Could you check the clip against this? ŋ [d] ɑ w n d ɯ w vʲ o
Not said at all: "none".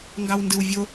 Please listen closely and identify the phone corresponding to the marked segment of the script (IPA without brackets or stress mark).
ɡ